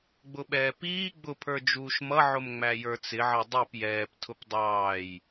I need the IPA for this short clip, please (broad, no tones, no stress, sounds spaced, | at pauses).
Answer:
ɡ͡b ʊ ɓ ɛː p iː ɡ͡b ʊ pʰ ə˞ d͡ʒ uː ʃ m ʌ ʕ ʊ m ŋ͡m æ j ə˞ t͡s ɪ ʕ ʌ dˤ i p j ɛː p tʰ ʊ p dˤ ɑː j